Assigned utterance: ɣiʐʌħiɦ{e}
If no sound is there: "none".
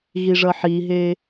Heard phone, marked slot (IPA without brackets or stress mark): e